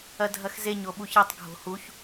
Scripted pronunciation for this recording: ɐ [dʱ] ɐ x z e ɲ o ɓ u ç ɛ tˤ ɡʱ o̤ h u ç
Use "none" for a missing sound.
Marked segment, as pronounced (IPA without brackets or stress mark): dʱ